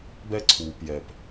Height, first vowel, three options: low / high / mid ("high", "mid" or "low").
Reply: mid